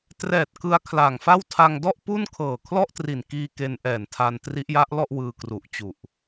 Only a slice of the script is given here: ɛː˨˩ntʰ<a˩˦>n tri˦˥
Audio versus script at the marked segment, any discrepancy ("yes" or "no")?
yes